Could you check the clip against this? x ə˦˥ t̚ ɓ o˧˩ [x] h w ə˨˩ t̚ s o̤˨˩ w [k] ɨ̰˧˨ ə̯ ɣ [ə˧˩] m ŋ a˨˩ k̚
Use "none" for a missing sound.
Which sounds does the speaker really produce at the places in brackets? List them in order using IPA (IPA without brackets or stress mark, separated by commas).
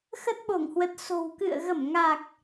ŋ, k, ə˧˩